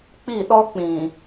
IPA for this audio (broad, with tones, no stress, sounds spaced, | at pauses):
k͡p i˦˨ ɗ ɔ˦ k͡p ĩ˨